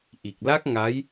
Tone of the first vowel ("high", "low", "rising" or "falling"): low